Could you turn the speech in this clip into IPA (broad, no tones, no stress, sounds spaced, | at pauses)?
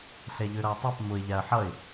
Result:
ɬ ɛ ʎ ø ɾ ʌ ɪ̯ tˤ a p m ʊ ɪ̯ ʎ a ə̯ ħ ʌ ɪ̯